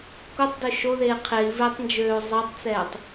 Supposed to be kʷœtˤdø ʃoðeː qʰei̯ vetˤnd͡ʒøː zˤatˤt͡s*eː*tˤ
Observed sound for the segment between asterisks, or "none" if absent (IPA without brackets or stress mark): ɛː